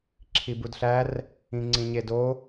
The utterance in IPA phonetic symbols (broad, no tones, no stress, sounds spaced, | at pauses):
ǁʰ i b u d ɬ æ r | ĩ ŋ͡ǀ ĩ ɲ e d o